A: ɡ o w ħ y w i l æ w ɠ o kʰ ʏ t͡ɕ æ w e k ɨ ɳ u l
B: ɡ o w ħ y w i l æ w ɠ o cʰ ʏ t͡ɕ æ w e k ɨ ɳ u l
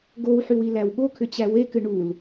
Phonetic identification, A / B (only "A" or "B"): A